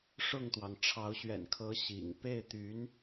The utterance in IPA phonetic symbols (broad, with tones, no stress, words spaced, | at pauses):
ʂʊ˥˩ŋt̪wɑ˩ŋ ʈ͡ʂʰɑ˧˥ʊ̯ɕɥɛ̰˨˩nkʰɤ˧˥ ɕḭ˨˩ŋ pe˥˩ɪ̯t̪y˧˥n